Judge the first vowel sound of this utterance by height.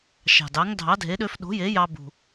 low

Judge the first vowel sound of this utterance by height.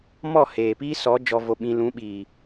mid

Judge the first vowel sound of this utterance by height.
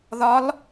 low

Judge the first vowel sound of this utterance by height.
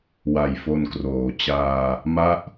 low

